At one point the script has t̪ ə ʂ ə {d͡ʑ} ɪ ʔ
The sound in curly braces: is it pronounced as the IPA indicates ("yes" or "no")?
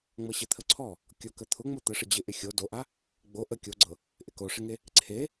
yes